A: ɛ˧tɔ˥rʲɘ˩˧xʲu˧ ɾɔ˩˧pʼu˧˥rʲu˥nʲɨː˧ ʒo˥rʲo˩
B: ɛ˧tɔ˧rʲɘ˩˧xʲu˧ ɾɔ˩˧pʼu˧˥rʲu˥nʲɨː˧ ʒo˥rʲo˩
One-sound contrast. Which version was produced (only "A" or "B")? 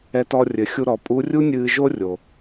B